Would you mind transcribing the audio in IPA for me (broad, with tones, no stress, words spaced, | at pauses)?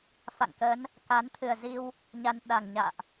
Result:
fa̰˧˨ŋkə˨˦n | ka˨˦nt̪ʰɨ˨˩ə̯zi˧w | ɲa˧nɗa˨˩ŋɲa̰ː˧˨ʔ